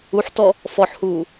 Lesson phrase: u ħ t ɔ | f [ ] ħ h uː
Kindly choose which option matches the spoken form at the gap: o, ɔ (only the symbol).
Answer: ɔ